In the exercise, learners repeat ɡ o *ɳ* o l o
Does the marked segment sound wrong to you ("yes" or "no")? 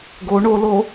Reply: no